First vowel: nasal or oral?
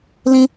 nasal